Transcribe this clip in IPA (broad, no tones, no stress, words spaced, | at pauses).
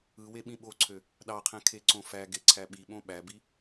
ɯ weɓĩɓoǀʰø | ɗɑqʰæ̃ kʰeǀõfæɡe ǀʰæɓiɓõ ɓæbi